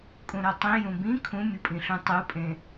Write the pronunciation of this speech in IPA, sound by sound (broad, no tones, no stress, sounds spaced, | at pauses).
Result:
kʼ ũ ɾ o tˤ ĩ j ũ b ĩ kʰ ũ mʲ ɯ pʼ ĩ ɬ ũ tˤ u pʼ ẽ